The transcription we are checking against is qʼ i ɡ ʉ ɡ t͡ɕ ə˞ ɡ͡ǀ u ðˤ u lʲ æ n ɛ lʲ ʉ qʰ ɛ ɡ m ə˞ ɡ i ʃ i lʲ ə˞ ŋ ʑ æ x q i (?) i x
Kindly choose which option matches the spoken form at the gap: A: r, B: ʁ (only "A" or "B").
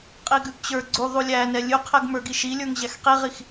B